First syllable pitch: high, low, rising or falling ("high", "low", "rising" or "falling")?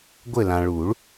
falling